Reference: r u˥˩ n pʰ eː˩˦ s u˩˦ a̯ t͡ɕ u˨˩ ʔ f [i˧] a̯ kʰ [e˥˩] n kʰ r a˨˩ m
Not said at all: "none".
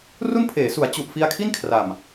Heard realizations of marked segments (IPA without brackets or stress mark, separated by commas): i˧, i˥˩